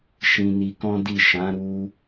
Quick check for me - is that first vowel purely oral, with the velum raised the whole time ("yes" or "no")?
no